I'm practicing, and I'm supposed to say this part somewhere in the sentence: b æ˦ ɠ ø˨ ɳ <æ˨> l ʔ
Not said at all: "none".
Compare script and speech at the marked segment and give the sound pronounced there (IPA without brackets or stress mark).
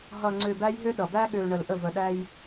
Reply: ə˨